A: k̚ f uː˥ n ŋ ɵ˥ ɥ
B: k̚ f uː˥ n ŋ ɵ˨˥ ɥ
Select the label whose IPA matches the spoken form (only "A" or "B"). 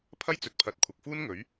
B